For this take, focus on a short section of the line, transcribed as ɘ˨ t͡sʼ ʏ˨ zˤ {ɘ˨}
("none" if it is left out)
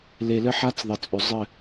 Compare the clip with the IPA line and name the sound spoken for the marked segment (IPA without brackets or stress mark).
ɘ˦˨